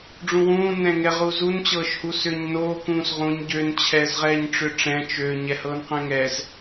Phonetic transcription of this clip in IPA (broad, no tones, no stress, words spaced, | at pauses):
ɖ͡ʐũwũː nɛ̃ŋɛʁuzun t͡ɕɤːʃhusʏːɲnoː kũːsʁũɲ ɟøn t͡ɕʰɛːzʁɛːɲʈ͡ʂʏʈ͡ʂɛ̃ t͡ʃø ɲɛhɤːnqɛ̃ŋɛːz